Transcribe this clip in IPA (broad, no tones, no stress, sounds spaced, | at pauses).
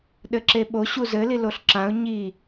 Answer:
ɗ ɘ ǁ e ɓ o ɕ u z ɘ l i l o ɬ ǁ ã ʊ̯ ɲ i